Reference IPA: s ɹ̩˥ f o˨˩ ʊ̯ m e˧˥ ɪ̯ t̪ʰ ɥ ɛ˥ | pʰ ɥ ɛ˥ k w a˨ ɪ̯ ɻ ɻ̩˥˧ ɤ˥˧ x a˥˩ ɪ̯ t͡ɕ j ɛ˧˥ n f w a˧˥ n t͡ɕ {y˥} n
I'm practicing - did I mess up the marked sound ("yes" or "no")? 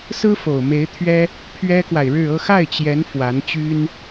no